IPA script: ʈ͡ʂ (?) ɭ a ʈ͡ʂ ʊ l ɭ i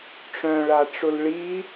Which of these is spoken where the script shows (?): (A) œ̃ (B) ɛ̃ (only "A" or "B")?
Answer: A